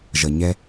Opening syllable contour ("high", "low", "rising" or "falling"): low